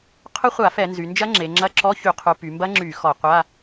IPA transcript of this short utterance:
qʰ ʊ˦˥ χʷ a˧˩˧ f ɛ˧˩˧ n z y˩˧ n d͡ʒ ɐ˦˥ ŋ͡ǁ e˩˧ ŋ͡ǁ ɐ˧˥˧ ǁ ɔ˧˥˧ ç y˧˩˧ qʰ u˩˧ p y˩˧ m b ɐ˦˥ ŋ͡ǁ y˧˩˧ x ɔ˧˩˧ qʷ a˧˥˧

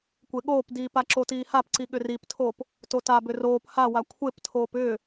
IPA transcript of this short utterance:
kʷ e ɠ oː p d iː p a ǁ o t iː h a p ǀ i ɠ ʏ r i p tʰ oː p | t o t a b ʏ r oː p h a w a kʷʰ e p tʰ oː p ʏː

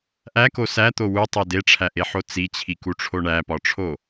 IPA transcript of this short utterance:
ʔ æ k o s æ t̪ o w u tˤ e d e ʈ͡ʂʰ æ ʔ e ħ o t͡s i t͡ɕʰ i k u ʈ͡ʂʰ o ɳ æ p ɒ ʈ͡ʂʰ o

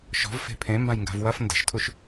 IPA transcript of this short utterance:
ʃ ɔ̤ v f e̤ pʰ ẽ m b ã j ŋ ɡ a̤ v w ɐ f n d ə̤ ʃ tʰ u ʃ

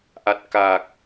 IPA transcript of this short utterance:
ʔ a˨˩ t̚ k a˨˩ k̚

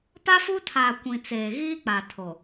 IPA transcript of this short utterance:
p a˦ f u˦ tʰ aː˨ kʷ ĩ˨ t͡s eː˨ ɣ iː˦ k͡p a˨ tʰ o˨

